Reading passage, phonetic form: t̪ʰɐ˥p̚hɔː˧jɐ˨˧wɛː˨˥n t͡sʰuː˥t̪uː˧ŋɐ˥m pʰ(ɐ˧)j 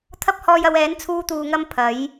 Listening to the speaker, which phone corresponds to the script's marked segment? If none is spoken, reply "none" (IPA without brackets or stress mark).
ɐ˨˥